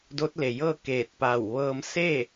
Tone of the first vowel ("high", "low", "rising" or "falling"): rising